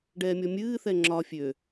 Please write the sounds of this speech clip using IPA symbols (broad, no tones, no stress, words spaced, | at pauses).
ɖɛːmʲɔmʲɨːθɛ ŋ͡ǁɒ fʲø